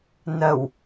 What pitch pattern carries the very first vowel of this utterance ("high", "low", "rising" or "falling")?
low